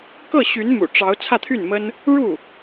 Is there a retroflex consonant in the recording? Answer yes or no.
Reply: yes